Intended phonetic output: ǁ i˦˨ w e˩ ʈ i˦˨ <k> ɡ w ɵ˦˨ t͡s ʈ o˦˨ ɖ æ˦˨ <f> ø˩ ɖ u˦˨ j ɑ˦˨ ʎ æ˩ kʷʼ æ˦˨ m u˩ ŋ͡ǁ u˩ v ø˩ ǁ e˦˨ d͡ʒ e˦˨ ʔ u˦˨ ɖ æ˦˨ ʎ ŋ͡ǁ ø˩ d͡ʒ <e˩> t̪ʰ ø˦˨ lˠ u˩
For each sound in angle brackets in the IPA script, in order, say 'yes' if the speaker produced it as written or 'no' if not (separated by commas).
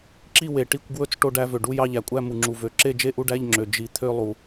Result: no, no, no